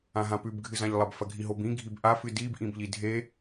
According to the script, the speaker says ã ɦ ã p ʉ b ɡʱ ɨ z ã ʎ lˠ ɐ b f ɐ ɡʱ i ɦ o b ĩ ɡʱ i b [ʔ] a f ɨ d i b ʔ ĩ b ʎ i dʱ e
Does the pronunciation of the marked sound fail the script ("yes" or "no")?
no